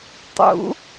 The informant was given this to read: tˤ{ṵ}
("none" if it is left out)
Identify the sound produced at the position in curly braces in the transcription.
ṵ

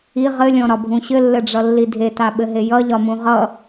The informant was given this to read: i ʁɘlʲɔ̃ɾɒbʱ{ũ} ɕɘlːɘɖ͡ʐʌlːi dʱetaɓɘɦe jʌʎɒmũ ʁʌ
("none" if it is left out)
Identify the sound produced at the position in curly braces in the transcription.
ũ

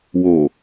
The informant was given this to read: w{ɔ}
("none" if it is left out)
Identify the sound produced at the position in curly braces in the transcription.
o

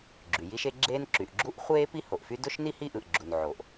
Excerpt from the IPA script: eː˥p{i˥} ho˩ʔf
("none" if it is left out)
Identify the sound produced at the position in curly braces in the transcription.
i˥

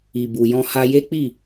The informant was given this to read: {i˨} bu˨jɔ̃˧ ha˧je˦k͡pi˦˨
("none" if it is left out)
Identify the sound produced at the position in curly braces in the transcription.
i˨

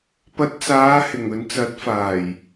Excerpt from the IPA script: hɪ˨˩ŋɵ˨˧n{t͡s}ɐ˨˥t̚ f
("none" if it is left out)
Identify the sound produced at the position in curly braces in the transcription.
t͡s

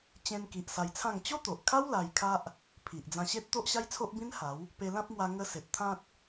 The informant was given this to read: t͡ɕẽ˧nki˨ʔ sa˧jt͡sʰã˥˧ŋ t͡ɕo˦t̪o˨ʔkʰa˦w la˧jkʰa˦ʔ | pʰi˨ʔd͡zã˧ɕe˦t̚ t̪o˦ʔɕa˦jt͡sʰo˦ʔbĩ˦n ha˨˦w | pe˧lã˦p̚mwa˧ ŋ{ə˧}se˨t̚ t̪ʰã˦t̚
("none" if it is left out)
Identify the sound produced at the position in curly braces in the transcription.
ə˧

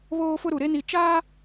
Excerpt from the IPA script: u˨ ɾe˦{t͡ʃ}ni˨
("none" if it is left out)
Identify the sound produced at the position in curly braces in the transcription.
none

